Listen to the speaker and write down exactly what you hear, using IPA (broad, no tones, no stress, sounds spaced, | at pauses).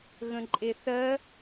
ɣ ə̃ ǃʼ e θ ɜ